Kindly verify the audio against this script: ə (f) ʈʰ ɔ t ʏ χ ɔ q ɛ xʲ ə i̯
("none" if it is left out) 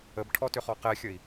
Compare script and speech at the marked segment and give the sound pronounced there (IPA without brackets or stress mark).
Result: b